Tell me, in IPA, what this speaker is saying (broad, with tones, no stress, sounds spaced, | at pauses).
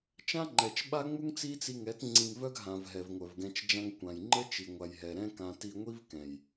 t͡ʃ ã˦ ŋ͡ǃ ɛ˨ t͡ʃ ɓ a˦ ŋ͡m u˦ ŋ t͡s i˦ t͡s i˧ ŋ ɛ˨˦ t ŋ͡ǀ ĩ˧ ŋ v œ˦ ɡ ɦ ã˨ v ɦ ɛ˨ v ŋʷ œ˨ v ɡ ɛ̃˧ t͡ʃ d͡ʒ ã˧ ŋ kʷ ã˨ j ŋ͡ǃ ə˦ t͡ʃ i˨ ŋʷ a˨ j ɦ ɛ˨ ɾ ɛ̃˦ k ã˧ t i˧ ŋʷ i˦ v k ɛ̃˨ j